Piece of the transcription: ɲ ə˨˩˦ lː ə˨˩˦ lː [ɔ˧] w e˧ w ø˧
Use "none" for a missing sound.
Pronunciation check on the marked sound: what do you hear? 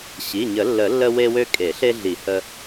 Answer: ə˧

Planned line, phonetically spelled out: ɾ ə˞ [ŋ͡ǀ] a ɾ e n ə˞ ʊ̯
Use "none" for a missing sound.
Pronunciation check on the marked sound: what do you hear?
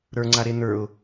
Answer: ŋ͡ǀ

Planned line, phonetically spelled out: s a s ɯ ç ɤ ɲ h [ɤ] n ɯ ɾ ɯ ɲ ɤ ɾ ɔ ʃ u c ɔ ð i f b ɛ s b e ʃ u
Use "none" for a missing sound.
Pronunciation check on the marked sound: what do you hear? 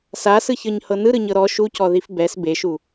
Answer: ɤ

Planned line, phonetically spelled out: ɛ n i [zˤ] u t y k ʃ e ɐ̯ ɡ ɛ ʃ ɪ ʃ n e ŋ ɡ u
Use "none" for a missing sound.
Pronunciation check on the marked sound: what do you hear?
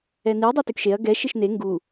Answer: dˤ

